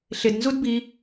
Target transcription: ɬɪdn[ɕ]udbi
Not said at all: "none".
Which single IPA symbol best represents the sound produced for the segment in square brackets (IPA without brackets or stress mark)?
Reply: z